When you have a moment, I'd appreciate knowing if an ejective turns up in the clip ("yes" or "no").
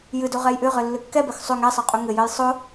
yes